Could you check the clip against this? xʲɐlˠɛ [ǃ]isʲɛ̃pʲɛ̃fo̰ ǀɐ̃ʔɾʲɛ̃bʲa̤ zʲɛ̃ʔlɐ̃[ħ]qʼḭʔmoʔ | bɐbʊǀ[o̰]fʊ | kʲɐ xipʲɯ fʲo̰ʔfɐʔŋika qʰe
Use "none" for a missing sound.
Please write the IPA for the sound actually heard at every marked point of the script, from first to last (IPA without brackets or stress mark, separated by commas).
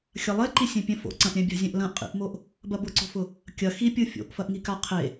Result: ǃ, ʔ, o̤